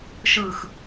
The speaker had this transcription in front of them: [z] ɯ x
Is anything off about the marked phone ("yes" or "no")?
yes